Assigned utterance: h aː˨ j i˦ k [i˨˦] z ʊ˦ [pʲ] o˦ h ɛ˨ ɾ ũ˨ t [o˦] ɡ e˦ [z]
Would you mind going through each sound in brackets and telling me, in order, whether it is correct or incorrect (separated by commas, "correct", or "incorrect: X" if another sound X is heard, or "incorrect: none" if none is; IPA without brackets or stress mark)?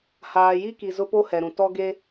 incorrect: i˨, incorrect: p, incorrect: ɔ˦, incorrect: none